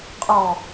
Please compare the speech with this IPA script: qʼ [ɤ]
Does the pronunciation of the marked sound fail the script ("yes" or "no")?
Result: yes